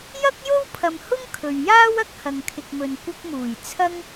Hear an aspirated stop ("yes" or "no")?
yes